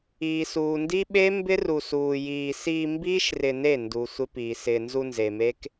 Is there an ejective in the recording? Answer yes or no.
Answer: no